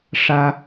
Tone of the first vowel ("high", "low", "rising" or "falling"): high